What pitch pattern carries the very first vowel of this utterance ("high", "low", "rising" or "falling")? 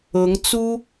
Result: rising